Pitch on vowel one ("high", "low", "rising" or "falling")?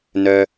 low